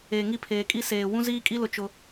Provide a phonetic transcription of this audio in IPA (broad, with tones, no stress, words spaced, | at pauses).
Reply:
eː˨ŋi˦˨ pʰeː˨kʼi˦ seː˨ wũ˦ziː˦kʼi˦lʊ˨ t͡ʃʊ˦